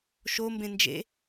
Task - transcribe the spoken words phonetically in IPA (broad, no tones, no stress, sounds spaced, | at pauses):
ʃ o m b ẽ n d͡ʒ ḛ